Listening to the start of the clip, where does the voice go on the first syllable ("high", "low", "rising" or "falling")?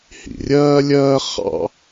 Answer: low